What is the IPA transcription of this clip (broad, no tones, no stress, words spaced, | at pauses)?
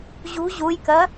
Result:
ʑṳ ʑujkɜ